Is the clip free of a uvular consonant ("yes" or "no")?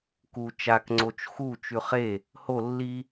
no